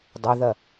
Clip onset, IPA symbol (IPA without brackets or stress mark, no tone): dˤ